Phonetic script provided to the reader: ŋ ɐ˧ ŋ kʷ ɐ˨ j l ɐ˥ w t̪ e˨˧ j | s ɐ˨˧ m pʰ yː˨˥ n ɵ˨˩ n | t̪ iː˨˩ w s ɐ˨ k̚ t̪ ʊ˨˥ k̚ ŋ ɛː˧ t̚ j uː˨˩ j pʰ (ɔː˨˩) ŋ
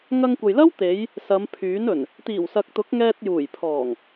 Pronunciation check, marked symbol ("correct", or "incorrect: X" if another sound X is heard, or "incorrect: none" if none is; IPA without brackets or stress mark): correct